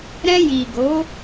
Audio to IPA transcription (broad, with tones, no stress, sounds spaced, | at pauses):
ɾ ɛ̃˧ j i˨ ɡ o˨˦